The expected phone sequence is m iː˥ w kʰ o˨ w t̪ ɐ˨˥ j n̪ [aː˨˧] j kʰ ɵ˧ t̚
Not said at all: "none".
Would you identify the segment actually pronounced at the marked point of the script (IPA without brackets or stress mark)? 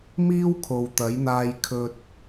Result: aː˧